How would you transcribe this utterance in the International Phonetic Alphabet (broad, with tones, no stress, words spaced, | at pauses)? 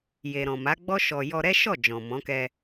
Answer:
je˨ɾɔ̃˨ma˨˦ɡ͡bɔ˦ ʃɔ˧ jɔ˧ɾɛ˦ʃɔ˦˨ d͡ʒɔ̃˨mɔ̃˨˦kɛ˧